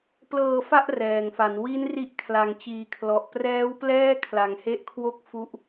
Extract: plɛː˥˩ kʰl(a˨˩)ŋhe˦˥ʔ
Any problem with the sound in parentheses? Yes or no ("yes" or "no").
no